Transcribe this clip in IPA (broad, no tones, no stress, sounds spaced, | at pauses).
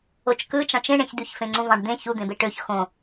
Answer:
o t͡ʃ k ɯ t͡ʃ ɑ̃ t͡ʃ ẽ ɳ ẽ ç d̪ y ç f ẽ ŋ͡ǀ ũ v ɑ̃ ɖ d̪ ẽ ç u d̪ ẽ b e ʈ ø ç x õ